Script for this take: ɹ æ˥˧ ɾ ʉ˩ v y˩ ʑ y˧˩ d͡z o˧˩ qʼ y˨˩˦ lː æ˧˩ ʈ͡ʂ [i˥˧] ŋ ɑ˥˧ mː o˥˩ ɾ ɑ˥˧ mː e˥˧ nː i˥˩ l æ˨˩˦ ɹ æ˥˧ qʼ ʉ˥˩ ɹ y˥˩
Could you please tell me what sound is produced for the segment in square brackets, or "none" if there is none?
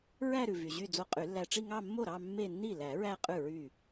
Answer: i˥˧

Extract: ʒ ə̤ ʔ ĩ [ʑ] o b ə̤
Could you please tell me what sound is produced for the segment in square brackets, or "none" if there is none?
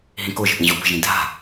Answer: ʑ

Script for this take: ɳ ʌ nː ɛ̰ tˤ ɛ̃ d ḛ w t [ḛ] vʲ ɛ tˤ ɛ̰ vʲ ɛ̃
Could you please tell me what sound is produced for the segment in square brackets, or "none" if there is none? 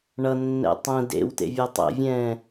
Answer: ḛ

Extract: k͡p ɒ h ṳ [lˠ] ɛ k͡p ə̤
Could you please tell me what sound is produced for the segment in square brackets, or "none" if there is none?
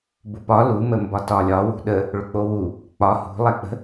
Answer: lˠ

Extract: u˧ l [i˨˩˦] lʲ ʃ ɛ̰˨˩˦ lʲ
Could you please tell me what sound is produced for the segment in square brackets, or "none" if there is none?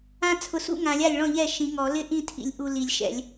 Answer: i˨˩˦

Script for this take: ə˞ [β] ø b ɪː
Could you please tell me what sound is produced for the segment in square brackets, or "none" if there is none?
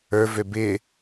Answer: v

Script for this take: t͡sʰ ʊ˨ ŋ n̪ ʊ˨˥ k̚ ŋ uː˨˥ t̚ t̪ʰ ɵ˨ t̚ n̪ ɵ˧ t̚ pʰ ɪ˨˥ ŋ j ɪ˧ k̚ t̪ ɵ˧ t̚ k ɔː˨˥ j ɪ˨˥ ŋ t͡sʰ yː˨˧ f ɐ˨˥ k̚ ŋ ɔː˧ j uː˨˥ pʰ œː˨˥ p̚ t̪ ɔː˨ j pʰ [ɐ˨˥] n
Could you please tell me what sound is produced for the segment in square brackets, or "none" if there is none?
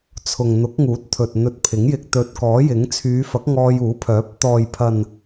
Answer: ɐ˨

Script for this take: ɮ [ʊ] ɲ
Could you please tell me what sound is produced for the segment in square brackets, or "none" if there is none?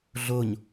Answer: ʊ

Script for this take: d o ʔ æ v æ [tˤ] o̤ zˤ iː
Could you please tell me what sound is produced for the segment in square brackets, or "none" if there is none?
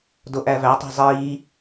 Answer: tˤ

